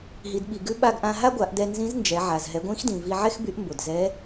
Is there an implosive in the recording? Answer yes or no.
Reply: yes